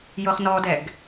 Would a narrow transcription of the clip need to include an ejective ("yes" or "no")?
no